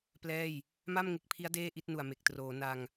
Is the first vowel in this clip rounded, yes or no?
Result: no